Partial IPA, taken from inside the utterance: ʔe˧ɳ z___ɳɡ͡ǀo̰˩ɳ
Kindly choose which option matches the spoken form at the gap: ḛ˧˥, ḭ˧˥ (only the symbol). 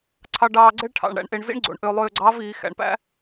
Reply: ḭ˧˥